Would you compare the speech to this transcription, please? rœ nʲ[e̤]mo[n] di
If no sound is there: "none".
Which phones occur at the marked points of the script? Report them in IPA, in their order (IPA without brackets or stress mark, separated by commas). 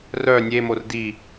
e, r